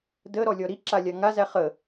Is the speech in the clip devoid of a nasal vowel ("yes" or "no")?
yes